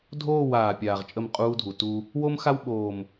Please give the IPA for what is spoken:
dʱ oː˦˨ w aː˨ pʲ aː˨ ʁ t͡ʃʼ ə˦˨ m qʼ uː˦ dʱ u˨ t u˦ | w o˦ m x a˦ w ɓ oː˨ m

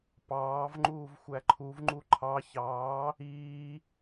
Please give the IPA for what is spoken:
p ɑː v ŋ͡ǃ uː v xʷ æ ǃʰ u v ŋ͡ǃ u ǃʰ ɑ ç ɑː | iː

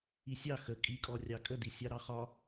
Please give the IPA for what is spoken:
i sʲ ɑ x ə kʼ i kʼ ɔ rʲ ɑ kʼ ə d i sʲ ɑ ɾ ɑ χ ɒ

